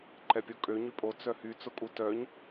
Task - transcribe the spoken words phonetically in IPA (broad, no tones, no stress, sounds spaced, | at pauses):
ǃ ɛ pʲ o kʼ ø ɲ y pʼ o t͡s œ h y t͡s ʊ kʼ u t œ ɲ